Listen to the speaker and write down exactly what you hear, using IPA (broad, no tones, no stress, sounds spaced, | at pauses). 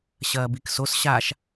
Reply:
ɕ ɐː b i k s o s ɕ a ʃ